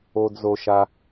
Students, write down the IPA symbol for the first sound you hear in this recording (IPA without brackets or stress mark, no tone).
o